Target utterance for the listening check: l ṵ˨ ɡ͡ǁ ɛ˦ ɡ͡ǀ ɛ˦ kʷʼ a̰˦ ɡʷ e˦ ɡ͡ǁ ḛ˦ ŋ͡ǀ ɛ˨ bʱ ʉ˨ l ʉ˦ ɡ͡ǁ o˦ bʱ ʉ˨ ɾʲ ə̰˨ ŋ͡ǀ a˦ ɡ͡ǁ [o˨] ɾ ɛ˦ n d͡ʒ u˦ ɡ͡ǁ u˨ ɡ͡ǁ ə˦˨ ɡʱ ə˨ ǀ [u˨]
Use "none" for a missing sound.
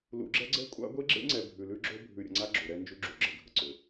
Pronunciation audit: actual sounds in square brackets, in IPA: o˨, ʏ˨

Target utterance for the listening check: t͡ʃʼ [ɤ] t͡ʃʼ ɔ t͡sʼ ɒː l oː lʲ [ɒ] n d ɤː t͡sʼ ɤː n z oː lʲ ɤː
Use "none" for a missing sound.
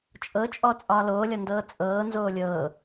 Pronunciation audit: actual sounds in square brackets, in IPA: ɤ, ɒ

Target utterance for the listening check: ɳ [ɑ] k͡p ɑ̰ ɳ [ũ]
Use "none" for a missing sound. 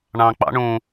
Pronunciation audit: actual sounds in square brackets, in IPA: ɑ̃, ũ

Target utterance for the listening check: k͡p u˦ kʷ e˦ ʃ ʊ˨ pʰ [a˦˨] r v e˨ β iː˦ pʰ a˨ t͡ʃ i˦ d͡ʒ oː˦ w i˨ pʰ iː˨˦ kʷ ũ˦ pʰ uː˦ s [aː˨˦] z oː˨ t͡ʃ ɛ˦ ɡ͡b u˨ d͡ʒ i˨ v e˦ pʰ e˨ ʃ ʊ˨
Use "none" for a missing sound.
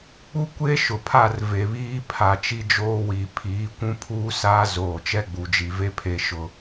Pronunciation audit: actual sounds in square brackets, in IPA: a˦˨, aː˦

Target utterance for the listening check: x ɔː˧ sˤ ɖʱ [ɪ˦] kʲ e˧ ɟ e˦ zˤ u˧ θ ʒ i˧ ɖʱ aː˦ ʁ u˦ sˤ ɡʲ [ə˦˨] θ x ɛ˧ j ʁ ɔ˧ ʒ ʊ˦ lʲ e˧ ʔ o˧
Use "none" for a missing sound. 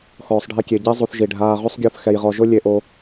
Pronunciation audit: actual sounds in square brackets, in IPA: ɪ˦, ɔ˦˨

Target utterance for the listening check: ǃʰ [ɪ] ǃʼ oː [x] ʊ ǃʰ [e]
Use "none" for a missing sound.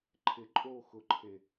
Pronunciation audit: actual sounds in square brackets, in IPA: ɪ, x, e

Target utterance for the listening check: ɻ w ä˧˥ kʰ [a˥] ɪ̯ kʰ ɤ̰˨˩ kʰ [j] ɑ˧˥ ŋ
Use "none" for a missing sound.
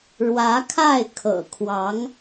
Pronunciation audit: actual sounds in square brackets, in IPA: a˥˩, w

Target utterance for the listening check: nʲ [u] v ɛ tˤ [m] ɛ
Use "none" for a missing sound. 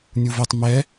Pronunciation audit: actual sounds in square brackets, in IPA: u, m

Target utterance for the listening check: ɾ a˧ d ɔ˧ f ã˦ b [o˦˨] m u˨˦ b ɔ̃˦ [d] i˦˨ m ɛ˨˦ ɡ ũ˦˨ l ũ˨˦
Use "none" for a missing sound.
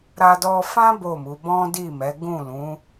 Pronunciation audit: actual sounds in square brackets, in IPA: o˦˨, d

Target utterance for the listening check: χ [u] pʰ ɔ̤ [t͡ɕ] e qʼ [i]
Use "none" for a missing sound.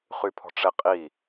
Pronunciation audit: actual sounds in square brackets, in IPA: y, ʈ͡ʂ, i

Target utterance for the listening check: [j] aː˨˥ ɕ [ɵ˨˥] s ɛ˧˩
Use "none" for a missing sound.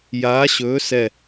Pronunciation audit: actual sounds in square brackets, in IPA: j, ɵː˨˥

